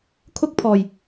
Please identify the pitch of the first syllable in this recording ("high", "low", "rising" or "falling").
high